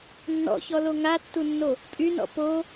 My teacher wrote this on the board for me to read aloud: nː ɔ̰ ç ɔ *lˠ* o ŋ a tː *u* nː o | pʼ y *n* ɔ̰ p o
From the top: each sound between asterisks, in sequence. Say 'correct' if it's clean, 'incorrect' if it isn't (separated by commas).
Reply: incorrect, correct, correct